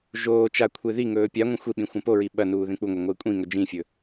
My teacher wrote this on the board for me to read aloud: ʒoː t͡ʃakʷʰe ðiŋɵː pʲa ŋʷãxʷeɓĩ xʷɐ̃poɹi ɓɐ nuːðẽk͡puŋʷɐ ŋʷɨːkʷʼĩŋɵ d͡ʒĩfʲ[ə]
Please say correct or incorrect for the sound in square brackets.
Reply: incorrect: ɵ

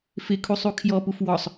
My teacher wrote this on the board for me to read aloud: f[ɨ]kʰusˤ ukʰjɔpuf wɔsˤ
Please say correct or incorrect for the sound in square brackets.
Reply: incorrect: ɪ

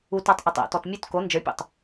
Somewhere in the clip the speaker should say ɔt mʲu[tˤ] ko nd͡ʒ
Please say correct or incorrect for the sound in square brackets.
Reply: incorrect: t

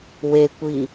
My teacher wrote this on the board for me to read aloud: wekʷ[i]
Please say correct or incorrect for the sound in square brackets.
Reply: correct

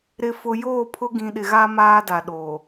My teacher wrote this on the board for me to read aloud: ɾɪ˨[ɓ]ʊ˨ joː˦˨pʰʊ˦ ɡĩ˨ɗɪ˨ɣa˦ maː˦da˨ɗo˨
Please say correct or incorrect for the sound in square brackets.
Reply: incorrect: f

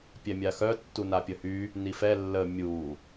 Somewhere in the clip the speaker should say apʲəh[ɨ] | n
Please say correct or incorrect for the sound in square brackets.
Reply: incorrect: y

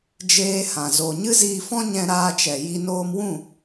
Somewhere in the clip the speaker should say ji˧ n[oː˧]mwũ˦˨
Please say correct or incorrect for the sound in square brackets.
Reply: correct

